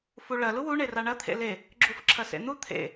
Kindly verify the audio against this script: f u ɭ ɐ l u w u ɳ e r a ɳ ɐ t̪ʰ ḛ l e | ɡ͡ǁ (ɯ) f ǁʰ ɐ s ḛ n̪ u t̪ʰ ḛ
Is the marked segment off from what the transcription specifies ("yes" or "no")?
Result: yes